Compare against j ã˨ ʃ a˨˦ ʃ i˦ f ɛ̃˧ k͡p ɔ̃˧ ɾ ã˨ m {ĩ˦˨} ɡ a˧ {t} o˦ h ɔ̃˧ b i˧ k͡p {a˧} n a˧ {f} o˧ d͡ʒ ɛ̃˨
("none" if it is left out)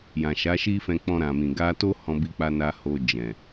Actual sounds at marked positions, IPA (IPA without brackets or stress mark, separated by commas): ĩ˨, t, a˧, h